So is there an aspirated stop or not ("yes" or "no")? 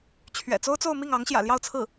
yes